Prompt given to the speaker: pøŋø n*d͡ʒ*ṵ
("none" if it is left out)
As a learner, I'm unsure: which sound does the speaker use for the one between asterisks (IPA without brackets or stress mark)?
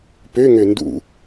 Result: d